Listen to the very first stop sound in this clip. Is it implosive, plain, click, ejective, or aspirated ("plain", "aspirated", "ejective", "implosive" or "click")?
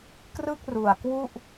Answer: plain